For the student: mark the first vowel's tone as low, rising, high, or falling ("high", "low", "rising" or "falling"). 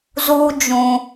high